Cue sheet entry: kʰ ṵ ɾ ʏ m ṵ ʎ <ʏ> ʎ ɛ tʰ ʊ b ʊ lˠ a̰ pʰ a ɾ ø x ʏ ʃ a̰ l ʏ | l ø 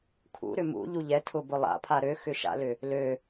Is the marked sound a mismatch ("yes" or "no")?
yes